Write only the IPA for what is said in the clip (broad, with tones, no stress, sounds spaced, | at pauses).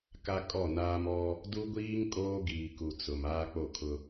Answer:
k a˦ kʼ ɔ˦˨ n aː˦ m ɔ˦ | d u˦ ɡʷ iː˦ ŋ kʼ oː˦ ɡ iː˨ k u˨ t͡s ʊ˨ m aː˦ k͡p o˦˨ kʰ ʊ˦